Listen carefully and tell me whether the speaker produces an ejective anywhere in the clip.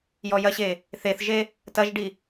no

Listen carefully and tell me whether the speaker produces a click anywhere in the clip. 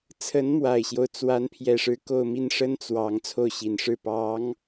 no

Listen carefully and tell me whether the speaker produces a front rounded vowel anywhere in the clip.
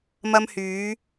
yes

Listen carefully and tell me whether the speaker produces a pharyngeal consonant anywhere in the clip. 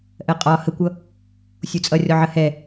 yes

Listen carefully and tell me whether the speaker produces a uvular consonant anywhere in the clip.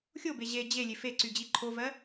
no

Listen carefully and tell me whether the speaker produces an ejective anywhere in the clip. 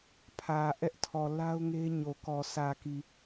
no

